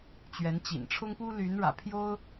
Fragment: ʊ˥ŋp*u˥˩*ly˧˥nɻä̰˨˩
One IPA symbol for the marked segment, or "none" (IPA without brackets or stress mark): u˥